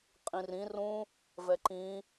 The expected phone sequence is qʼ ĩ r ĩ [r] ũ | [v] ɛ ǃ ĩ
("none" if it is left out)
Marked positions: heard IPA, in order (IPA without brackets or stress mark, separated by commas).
r, v